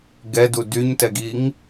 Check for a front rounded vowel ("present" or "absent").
present